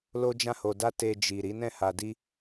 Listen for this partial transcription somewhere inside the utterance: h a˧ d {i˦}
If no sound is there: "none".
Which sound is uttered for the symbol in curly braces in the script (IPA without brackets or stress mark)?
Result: i˦